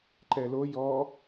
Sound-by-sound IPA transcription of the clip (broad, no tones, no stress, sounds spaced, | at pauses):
ǃ ɛ l o j ɔ